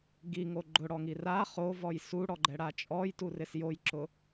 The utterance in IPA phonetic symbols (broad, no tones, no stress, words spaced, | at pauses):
ɡiŋo ɡ͡ǃʊɽɔŋi ra χovɔj suɽɔɡ͡ǃɛɽa t͡ʃʼɔjturɪs jojǁʊ